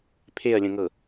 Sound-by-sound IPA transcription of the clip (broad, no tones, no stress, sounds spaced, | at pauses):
pʰ e ɐ̯ lʲ ə̃ ŋ ɤ